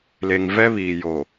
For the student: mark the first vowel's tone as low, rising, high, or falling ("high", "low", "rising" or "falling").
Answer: low